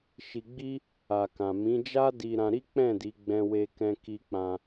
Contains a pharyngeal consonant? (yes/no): no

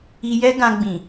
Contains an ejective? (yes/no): no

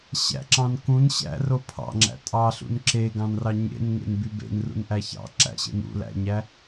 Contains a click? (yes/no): yes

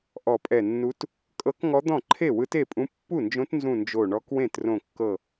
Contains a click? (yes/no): yes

